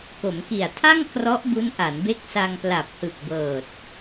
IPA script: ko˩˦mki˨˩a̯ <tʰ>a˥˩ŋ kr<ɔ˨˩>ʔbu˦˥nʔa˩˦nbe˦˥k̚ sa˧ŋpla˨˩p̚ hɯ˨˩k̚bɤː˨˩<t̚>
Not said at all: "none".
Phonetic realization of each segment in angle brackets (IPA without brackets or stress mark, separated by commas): tʰ, ɔ˦˥, t̚